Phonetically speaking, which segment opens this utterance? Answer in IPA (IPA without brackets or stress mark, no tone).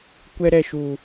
kʷ